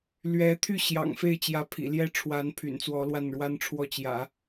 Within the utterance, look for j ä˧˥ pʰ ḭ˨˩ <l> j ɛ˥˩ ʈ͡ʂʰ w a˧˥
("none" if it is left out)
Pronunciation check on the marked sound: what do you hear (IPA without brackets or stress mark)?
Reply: l